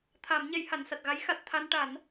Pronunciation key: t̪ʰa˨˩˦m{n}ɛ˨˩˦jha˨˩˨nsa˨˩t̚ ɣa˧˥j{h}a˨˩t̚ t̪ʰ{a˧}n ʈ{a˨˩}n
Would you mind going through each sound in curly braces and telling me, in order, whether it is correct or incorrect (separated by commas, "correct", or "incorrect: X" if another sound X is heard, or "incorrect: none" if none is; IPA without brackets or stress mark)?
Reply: incorrect: ɲ, incorrect: x, correct, incorrect: a˨˩˦